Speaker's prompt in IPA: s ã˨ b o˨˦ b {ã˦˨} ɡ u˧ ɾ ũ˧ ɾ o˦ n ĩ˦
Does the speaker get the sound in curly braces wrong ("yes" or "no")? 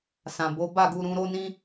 yes